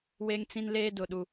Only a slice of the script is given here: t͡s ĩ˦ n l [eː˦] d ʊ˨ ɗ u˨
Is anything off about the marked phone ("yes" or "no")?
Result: no